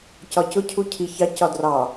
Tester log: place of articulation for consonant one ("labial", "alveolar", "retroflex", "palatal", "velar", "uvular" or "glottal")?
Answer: palatal